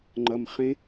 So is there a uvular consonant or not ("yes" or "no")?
yes